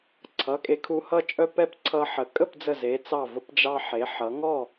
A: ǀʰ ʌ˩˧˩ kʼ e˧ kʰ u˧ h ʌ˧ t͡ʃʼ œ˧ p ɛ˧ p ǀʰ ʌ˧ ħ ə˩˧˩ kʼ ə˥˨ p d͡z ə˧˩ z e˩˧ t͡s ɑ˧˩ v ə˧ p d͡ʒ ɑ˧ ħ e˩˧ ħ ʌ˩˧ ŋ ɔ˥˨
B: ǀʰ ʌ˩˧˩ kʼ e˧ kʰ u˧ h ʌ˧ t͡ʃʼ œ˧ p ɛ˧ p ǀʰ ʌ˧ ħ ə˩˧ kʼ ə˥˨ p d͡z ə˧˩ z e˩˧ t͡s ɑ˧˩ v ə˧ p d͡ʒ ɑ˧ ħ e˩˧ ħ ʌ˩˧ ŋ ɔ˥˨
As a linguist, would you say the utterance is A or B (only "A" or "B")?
B